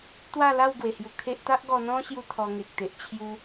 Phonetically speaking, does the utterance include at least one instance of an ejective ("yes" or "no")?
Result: no